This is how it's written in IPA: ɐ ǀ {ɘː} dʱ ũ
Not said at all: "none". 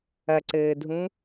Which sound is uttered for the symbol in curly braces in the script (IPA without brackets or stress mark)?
ɘː